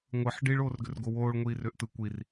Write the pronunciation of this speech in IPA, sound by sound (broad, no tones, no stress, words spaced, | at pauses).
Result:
ŋʷɯħ ɖiɭoːrɡʏr ɡowoːɭŋʷiːr ʏːʔtɯ kʷir